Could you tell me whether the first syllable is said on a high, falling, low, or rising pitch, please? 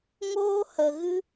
high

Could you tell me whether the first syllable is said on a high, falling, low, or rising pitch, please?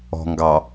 low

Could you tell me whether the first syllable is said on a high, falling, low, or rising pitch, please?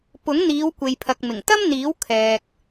rising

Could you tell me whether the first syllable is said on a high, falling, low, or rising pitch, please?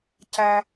low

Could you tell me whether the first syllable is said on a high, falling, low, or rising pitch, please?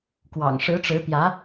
low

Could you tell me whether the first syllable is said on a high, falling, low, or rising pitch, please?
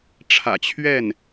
low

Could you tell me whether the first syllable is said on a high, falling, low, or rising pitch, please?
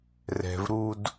low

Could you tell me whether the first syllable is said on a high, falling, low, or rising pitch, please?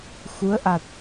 rising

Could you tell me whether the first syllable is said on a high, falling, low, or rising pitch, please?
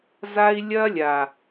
high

